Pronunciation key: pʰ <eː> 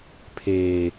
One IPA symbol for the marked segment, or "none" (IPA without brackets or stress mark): eː